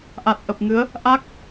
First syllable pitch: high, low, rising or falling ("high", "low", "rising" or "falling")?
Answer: low